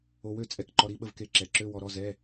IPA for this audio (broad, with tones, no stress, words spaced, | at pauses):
o˧wø˥˩ t͡sʼɛ˧˥˧kǃɔ˧ ɾi˥˩ɓə˥˩vke˧ ǁɛ˨˩ǁø˧˥˧ wɔ˧ɾɔ˧˥˧ zɛ˧˥˧